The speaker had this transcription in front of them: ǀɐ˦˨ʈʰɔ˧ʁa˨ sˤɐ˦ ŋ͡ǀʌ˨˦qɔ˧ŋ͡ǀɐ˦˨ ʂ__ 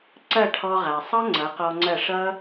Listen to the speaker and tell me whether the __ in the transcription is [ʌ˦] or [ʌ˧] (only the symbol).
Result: ʌ˦